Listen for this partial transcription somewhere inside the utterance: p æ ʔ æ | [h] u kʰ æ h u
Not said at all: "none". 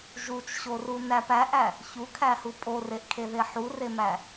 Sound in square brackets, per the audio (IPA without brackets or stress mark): ç